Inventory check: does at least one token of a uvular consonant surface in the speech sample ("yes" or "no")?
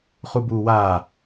yes